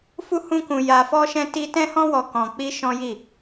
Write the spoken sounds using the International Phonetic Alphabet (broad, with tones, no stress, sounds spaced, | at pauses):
f u˦ h ũ˦ k ũ˧ j a˧ f ɔ˦ ʃ ɛ̃˦ t i˦ t ɛ̃˦ h ɔ̃˦ w ɔ˧ k ɔ̃˧ k͡p i˦ ʃ ɔ̃˦ j i˦˨